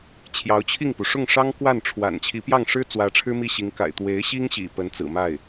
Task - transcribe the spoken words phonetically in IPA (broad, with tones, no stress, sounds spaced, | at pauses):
t͡ɕʰ j ɑ˧˥ ʊ̯ t͡ɕʰ i˥˩ ŋ p u˩ ʂ ʊ˥˩ ŋ ʂ ɑ˥ ŋ k w a˥˩ n ʈ͡ʂʰ w a̰˨˩ n t͡ɕʰ i˧˥ p j ɑ˥˩ ŋ ʂ ɻ̩˥ t͡s w ä˧˥ ʈ͡ʂʰ ɻ̩˥ m i˥˩ ɕ i˧˥ ŋ k a̰˨˩ ɪ̯ t̪ w e˧˥ ɪ̯ ɕ i˥ ŋ ɕ ḭ˨˩ p ə˧˥ n t͡s ɹ̩˨˩ m a˥˩ ɪ̯